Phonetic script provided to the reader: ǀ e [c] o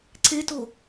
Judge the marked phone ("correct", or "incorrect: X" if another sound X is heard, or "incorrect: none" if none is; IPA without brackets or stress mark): incorrect: t